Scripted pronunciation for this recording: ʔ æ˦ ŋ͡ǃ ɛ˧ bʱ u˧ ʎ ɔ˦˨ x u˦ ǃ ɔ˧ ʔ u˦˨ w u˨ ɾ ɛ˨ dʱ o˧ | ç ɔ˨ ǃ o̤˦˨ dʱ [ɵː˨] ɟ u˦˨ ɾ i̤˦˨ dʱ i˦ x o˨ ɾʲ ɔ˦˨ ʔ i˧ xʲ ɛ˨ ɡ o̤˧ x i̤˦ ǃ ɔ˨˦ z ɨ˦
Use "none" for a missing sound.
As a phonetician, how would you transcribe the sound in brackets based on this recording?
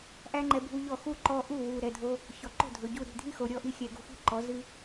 ɵ˨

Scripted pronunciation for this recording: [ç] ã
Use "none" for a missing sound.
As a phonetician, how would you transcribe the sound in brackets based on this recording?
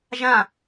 ʒ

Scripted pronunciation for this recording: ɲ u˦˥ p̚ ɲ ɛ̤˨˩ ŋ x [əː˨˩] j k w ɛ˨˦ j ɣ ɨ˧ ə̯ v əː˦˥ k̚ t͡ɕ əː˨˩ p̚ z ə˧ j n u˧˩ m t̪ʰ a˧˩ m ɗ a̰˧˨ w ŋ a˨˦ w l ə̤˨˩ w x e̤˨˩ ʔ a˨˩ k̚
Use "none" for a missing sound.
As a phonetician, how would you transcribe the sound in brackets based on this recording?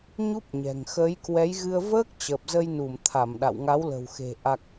əː˨˦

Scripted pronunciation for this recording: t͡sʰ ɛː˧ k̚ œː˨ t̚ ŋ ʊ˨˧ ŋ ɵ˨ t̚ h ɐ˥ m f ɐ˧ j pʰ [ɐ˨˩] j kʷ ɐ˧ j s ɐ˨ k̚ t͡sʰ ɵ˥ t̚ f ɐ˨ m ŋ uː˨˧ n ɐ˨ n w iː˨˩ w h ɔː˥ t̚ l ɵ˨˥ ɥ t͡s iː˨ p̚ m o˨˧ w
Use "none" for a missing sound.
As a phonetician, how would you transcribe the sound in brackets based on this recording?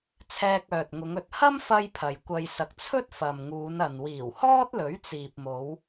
ɐ˨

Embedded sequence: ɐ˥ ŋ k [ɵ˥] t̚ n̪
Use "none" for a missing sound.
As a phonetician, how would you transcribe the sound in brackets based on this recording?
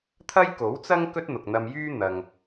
ɵ˥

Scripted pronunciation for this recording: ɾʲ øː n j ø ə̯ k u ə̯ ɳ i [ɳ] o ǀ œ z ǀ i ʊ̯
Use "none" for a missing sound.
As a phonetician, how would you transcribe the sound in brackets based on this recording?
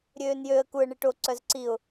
ʈ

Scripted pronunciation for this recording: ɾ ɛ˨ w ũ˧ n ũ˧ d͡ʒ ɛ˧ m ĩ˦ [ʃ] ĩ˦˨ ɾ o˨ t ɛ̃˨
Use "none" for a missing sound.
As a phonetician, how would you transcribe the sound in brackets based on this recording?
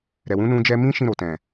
ʃ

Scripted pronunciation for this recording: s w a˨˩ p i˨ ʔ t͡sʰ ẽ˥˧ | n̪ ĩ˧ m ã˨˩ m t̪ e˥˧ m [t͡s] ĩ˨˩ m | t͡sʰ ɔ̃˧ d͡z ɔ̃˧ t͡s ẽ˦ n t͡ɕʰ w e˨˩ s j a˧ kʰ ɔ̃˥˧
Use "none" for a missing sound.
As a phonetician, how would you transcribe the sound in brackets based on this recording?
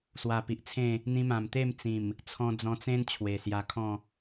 t͡s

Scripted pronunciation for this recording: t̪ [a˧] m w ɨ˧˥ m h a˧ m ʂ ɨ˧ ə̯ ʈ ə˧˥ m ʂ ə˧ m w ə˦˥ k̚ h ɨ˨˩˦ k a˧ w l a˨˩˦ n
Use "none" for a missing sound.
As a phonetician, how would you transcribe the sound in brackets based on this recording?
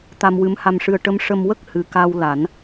a˧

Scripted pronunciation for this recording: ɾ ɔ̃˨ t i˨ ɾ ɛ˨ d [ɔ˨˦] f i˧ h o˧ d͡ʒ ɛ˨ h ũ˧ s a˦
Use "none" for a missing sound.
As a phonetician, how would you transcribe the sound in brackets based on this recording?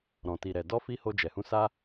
ɔ˧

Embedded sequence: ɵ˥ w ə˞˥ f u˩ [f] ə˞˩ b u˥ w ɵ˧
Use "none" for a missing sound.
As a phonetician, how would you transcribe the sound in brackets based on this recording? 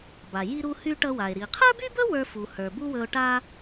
h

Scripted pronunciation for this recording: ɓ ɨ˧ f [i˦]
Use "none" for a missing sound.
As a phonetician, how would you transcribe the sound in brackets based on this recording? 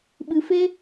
e˦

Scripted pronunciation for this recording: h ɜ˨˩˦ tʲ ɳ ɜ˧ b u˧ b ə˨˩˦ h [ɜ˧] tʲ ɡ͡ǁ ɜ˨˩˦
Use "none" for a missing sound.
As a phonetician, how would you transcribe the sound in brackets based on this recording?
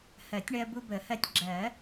ɜ˧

